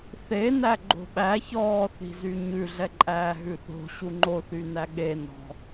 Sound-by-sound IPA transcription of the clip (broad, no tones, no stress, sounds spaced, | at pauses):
θ e n æ ɡ͡ǃ o̤ ɓ æ ç ɔː θ i̤ z y ɲ ʉ ɮ ɛ ǃʼ æː ɦ ʉ θ o̤ ɕ u ŋ͡ǃ o θ y n æ ɠ e n ɔ̤